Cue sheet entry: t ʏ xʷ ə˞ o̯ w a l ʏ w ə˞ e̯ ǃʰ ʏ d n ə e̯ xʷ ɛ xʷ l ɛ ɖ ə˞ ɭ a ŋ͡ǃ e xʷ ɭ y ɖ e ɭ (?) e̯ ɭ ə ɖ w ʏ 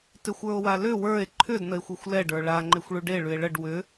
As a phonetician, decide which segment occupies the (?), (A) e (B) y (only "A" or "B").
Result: B